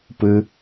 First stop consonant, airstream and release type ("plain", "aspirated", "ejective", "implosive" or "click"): plain